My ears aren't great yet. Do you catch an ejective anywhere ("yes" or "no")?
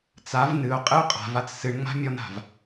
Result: yes